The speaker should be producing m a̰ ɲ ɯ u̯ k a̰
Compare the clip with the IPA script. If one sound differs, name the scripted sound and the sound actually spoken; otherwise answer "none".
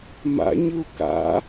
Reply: none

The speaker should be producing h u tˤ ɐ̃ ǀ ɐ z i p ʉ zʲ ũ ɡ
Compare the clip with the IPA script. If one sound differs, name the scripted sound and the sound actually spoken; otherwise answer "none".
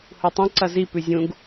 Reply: none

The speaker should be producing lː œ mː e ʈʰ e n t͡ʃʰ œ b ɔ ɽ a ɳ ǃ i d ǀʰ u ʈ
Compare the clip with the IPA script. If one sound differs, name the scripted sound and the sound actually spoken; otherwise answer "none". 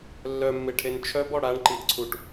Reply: none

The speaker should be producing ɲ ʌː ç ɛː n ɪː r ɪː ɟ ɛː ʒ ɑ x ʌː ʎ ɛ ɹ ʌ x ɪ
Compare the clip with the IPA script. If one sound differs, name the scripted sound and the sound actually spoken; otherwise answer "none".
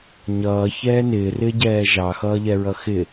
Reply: none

